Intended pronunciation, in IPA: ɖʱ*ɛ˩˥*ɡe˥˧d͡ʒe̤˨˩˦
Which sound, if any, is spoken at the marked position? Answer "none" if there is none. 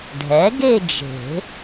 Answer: ɛ˩˥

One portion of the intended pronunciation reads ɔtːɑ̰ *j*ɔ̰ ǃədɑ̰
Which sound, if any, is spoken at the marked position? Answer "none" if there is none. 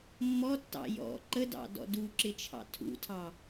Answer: j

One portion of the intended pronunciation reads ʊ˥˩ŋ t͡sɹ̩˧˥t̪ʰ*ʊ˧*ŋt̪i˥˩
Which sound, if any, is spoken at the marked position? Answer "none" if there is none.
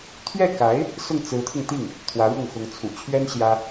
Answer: ʊ˧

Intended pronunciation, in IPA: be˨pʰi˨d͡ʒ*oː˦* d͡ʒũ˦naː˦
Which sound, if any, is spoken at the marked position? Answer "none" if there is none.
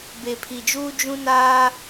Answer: uː˦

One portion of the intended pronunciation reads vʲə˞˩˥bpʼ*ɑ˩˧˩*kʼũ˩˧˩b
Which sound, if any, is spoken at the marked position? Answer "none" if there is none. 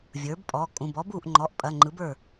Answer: ɔ˩˧˩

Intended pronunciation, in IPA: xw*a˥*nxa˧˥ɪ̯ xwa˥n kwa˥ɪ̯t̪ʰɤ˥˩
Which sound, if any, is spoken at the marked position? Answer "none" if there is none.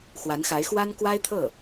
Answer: a˧˥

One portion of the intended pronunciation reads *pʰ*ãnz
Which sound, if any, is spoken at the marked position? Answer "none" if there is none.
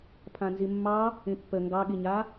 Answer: pʰ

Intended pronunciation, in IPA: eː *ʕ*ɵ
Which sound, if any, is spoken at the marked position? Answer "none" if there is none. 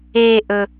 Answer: ʔ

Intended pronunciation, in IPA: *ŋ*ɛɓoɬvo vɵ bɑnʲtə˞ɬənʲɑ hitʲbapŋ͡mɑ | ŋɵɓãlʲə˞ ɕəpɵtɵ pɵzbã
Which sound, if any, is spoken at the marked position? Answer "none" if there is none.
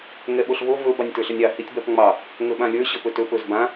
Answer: ŋ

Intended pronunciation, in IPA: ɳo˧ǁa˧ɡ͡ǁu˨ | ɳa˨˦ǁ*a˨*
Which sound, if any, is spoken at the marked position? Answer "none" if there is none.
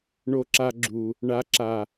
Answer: a˨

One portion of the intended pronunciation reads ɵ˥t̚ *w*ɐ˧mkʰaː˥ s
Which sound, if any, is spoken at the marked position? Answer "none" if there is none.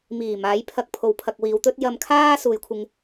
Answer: j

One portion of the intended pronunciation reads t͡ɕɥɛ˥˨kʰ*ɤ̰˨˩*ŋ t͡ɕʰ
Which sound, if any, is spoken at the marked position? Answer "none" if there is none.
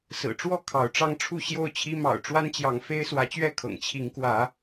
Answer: ɤ̰˨˩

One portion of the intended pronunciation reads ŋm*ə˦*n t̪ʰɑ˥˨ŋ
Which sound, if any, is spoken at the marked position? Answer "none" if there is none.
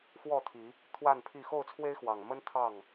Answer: ə˦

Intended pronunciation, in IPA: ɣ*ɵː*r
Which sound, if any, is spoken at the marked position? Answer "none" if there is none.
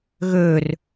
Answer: ɵː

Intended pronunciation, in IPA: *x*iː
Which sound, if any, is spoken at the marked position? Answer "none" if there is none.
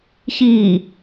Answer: ç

